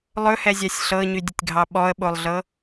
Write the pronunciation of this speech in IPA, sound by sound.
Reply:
lˠ ɵ h ɛ zʲ a sʲ ɬ ɤ ɲ y dʲ ə tʲ ɡʱ ɑ ɓ ɔ ə̯ ɓ o lˠ ɮ ɤ

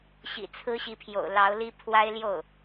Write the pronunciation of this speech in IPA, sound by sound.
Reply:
ɕ ḭ˨˩ t͡sʰ ɹ̩˥ ɕ i˧˥ pʰ j o̰˨˩ ʊ̯ l ɑ˧˥ ʊ̯ l i˥ pʰ w a˥ ɪ̯ l j o˥˩ ʊ̯

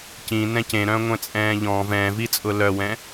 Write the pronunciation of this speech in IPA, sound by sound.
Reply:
c ĩ n ɛ̃ c ẽ ɾ œ̃ː ŋʷ ɛ̃ t͡sʼ ɛ̃ː ʎ ɔ̃ v ɛ̃ː v i t͡sʼ ʊ l œ w ɛ̃

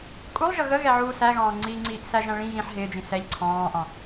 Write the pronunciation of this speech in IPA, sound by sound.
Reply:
kʼ u lˠ ʒ ʌ ɣ ə ɣ ɛ ʕ uː s æ ɣ ɑ̃ː ŋ͡ǀ iː ŋ͡ǀ iː ʔ s æ ʒ æ̃ ɭ ĩ ɣ ĩ ħ ɦ ɪː d͡ʒ ĩ s ɛ ʎ ǀʰ ɑ̃ː ʔ ɑ̃

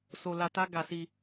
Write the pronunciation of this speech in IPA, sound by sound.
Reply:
s o˨ l a˧ t a˦ ɡ a˧ s i˧

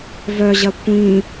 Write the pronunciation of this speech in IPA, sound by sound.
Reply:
v œ ʑ ɐ kʷ ĩː

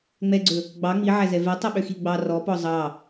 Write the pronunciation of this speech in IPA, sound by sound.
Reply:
ŋ͡m ɛ ɡ͡ǀ ɵ | ɡ͡b ɑ ŋ͡m i ʕ æ z ɛ v ɛ tˤ i ɓ ø x i ɡ͡b ɑ r ɔ p ɔ zˤ ɑ

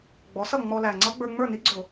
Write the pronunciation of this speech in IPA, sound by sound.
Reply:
ɡ͡b ɔ˩˥ s ʌ˥˩ ŋ͡m ɔ˧ l æ˨˩ ŋ͡ǀ ʌ˧˥ ɡ͡b ə˞˧ ŋ͡m ə˞˥˩ n i˧˥ ɡ͡ǀ ʊ˧˩˧

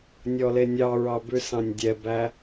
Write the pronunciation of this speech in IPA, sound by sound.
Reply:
nʲ ɔ l e nʲ ɑ ɹ ɑ b ʉ s ɑ̃ nʲ dʲ ɛ b æ

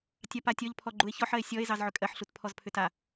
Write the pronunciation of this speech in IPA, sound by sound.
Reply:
tʲ ɑ p a tʲ ɔ ʎ pʰ ɔ ɡ͡ǃ u e̯ ç ɔ ħ ɜ e̯ sʲ ɔ e̯ z ɑ z ʕ ʏ kʼ ɜ ħ ɬ u t pʰ ɔ z pʰ ʏ t a

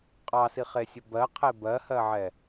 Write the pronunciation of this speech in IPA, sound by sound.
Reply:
qʼ ɑ s i χ e sʲ ʊ b ɜ qʰ e b ɜ h ɜ ʕ ɛ

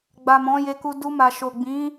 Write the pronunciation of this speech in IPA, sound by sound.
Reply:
ɡ͡b a˨ m ɔ̃˨˦ j e˧ k u˧ d u˧ m a˨ ʃ o˨ ɡ͡b ĩ˨˦

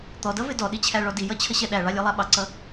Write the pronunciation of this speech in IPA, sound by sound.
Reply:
t̪ ɔ d ʌ v ɪ d ɔ ɗ i t͡ɕʰ æ ɭ ɔ d i j ʌ t͡ɕʰ ə ɕ ɛ ɗ æ ɭ ɑ lʲ ɛ lˠ æ ɓ ɑ ǀ ʌ

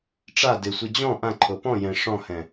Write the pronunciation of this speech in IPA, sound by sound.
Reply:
ʈ͡ʂ a d ɪ sʷ i d͡ʑ ɔ̃ ʔ ã ǃʰ o p ɔ̃ j ɛ̃ ʂ ɔ̃ h ɛ̃

